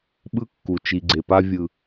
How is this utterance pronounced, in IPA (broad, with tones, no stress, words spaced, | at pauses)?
ɓɯ˦kːu˨t͡ʃi˨ɡ͡ǀe˨ pa˦vʲɯ˨